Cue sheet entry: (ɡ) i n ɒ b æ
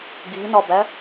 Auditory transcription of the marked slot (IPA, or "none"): ɡ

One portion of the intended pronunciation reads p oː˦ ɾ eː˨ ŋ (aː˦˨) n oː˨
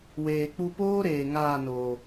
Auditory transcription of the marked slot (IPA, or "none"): aː˦˨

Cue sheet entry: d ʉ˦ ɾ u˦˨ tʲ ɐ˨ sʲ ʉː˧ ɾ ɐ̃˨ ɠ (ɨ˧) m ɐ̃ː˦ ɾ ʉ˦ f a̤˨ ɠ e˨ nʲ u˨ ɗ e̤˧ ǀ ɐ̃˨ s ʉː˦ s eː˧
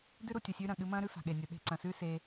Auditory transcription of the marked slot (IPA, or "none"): ɨ˧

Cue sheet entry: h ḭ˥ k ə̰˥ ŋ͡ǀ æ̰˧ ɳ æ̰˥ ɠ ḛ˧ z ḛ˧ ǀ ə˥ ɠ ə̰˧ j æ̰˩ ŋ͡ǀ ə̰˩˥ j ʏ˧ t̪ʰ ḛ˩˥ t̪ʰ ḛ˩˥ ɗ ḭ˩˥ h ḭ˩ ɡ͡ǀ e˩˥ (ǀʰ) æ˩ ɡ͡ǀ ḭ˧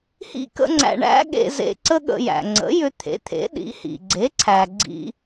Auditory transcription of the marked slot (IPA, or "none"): ǀʰ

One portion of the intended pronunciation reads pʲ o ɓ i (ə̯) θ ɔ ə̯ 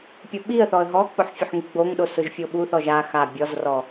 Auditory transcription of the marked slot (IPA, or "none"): ə̯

